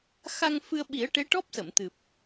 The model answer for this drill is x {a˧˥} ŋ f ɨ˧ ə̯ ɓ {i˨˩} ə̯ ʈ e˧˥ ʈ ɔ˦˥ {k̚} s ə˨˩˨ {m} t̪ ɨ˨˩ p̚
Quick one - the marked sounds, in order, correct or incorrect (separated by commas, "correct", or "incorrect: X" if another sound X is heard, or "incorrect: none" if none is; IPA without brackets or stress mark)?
incorrect: a˧, incorrect: i˨˩˦, incorrect: p̚, correct